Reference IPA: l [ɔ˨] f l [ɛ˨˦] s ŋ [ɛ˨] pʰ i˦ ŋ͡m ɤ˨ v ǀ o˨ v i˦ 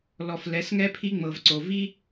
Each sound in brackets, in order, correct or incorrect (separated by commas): correct, correct, incorrect